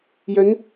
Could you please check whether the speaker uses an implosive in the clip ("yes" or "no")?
no